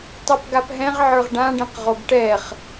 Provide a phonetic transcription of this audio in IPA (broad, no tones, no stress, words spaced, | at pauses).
tˤapɡapɦɛ̃ʁʕə˞ʁ ɖãɖɛ̃q ʁoɡʈɛχ